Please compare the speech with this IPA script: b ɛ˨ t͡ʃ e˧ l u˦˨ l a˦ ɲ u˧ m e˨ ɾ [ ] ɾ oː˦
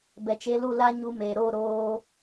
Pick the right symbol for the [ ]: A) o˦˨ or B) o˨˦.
A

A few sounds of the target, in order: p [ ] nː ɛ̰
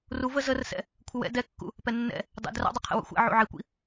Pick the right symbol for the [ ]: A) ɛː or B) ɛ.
B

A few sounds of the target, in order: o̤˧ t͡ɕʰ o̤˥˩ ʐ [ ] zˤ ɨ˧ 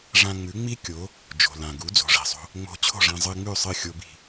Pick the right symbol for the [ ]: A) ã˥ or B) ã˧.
B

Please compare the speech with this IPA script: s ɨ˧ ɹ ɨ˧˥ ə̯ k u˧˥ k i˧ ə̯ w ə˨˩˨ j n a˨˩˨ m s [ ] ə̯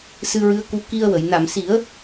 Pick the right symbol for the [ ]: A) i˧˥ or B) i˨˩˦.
B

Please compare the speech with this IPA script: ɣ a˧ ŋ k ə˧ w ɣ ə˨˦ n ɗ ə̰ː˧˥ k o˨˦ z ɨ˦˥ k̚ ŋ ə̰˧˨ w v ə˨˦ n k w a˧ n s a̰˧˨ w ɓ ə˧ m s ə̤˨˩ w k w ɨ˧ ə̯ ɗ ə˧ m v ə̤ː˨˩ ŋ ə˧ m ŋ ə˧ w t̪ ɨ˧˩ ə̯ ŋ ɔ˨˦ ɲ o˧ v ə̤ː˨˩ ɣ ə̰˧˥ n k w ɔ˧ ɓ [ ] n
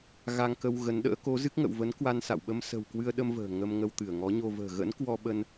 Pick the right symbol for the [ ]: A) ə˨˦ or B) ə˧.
B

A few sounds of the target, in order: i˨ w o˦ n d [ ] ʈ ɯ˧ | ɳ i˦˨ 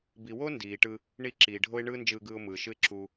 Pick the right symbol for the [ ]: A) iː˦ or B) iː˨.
B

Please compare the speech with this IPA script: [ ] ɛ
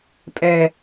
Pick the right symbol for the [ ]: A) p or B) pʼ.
B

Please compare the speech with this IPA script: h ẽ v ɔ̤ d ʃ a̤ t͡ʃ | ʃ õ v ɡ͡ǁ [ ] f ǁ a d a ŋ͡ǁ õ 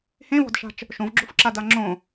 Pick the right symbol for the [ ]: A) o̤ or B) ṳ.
A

